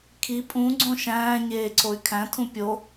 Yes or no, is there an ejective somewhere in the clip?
yes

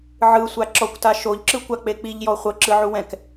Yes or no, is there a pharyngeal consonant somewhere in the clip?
yes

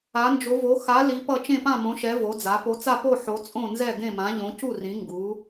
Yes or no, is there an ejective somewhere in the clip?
yes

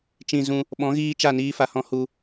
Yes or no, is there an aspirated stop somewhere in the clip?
no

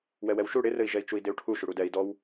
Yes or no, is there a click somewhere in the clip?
no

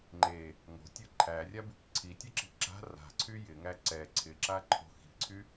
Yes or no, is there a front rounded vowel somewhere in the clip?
yes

